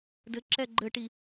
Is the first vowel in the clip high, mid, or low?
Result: mid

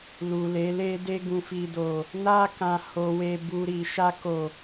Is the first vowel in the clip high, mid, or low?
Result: high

